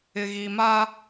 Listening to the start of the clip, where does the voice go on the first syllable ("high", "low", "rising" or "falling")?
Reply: low